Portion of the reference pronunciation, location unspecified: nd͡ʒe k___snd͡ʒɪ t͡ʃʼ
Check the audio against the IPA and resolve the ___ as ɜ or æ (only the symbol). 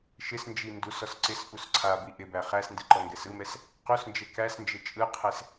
æ